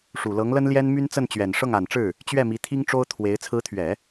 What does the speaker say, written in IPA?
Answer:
ʂu˨˩lɤ˧˥ŋlə˥nljɛ˥n my˥nt͡sə˥˩nt͡ɕɥɛ˨˩n ʂɤ˥˩ŋa˨˩nʈ͡ʂɻ̩˥˩ | t͡ɕɥɛ˥˩mi˧˥ t̪ʰi˥ŋʈ͡ʂo˥ʊ̯t̪ʰwe˧˥ɪ̯ t͡sʰɹ̩˧˥t̪ʰɥɛ˨˩˦

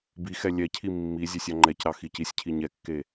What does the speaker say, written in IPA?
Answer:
bixɛ lʲɛcʰi mːi zʲesʲɑŋ͡ǃɛcɾɑ xicisʲcʰi ɲɛkːe

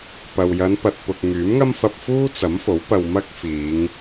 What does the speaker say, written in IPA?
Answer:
pɐ˨w jɐ˨˧npɐ˨t̚pʊ˨k̚ ŋyː˨˥mŋɐ˥mfɐ˧p̚ fuː˥t͡sɐ˨˥mfo˨˥w pɐ˧wmɐ˥k̚fiː˨˧ŋ

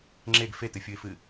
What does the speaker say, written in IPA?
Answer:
ŋ͡ǁeɡ fetɨfʲuɪ̯fɨ

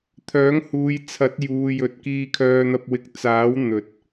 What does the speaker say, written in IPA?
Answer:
t̪ʰœː˨˥ŋhuː˨˧j t͡sʰɐ˨˥t̚juː˨jɵ˨t̚ kiː˧kʰœː˧n̪ɐ˧p̚wɪ˨˥k̚ t͡saː˨˥w n̪ɵ˨˥t̚

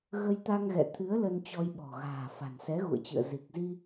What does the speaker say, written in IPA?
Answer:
ɣə˧jt̪a˧ŋɣɛ̰˧˨t̪ʰɨ˨˦ə̯ lə˧nt͡ɕɔ˧jɓɔ̤˨˩ ɣa̤ː˨˩fa̤˨˩nsɛ˨˦ ɣṵ˧˨ə̯t͡ɕɨ̰˧˨ə̯ zi˨˩k̚zi˧

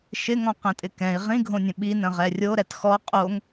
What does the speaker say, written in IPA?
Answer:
ʃɪŋɔ̃qɛ̃tʼɪ kɛ̃i̯ ʁĩɡʱõnʲə̃ ɓi nə̃ʁɛrʲoɾɛt xɔ qʼoŋ

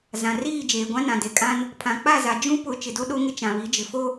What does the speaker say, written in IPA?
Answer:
zã˨riː˦˨ d͡ʒeː˨ɡʷã˦nã˨ de˨kʼã˦n | pʰã˨k͡pa˦˨za˨ d͡ʒũ˦pʊ˨˦ t͡ʃɪ˨do˦ɗo˦ŋɪ˦ t͡ʃã˨βi˨˦d͡ʒɪ˨ fo˦

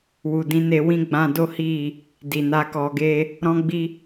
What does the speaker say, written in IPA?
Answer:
wu˨dĩ˨˦ne˧ wĩ˦ ɡ͡bã˧do˦hi˦˨ | di˨na˧kɔ˧ɡe˦ | ɾɔ̃˦ɡ͡bi˦

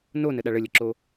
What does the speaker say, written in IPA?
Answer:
nonəɗa ɭəlʲəǁo

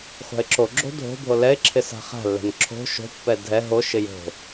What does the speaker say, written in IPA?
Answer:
χʷa̤ɪ̯ǁoɡ͡ǁo̤ dʱo̤ bʱolɛɪ̯ǁʰɪ sa̤χa̤lːɛ̤n ǁʰo̤ ʃo̤pːɛ dʱɛ ɦoʃɪ jo̤

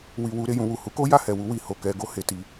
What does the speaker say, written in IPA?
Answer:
wi˨ wu˨˦ɾe˦˨jũ˧wu˨ hu˨˦ko˦ja˦˨hɛ˨ wu˧wi˨ho˨ kɛ˧ɡo˦he˧ ti˧

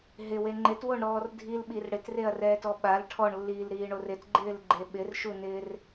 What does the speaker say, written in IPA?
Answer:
ɦɪwe ŋ͡ǃɪtwoɳɾɔːr dʱilɓir ɽɪtreɐ̯rɛːtɔ ɓal ʈʰɔɳlːiːlɾiːɳor ɪtɡ͡ǃɪːlɡ͡ǃe ɓɪrʃunɪːr

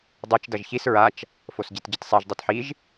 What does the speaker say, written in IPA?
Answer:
dˤet͡ʃ dʌʒçis ɹat͡ʃ | fosɟitɟɯtsˤɛʒ dˤotħiʒ

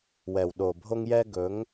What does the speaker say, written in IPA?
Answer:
wɛ˨w ɗo˨bʱo˦ŋjɛ˦ ɡɵ˨˦ŋ

